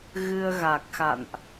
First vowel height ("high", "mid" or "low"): high